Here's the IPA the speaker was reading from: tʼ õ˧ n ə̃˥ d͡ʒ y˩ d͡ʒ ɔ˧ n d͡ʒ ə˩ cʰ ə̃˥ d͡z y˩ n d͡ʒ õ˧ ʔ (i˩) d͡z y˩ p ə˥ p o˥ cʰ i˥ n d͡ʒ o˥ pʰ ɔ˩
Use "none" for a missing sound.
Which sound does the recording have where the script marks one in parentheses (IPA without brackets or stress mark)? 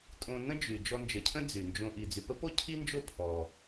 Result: i˩